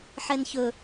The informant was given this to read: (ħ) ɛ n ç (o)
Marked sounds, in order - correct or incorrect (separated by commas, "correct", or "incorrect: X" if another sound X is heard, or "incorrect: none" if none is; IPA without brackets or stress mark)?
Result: correct, incorrect: ɵ